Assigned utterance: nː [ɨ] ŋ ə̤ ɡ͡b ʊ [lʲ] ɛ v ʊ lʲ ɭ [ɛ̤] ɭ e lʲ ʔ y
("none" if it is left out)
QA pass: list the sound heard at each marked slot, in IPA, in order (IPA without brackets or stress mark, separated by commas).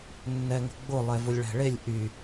ɛ, lˠ, ɛ̤